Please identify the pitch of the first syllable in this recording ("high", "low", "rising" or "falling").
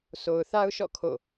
low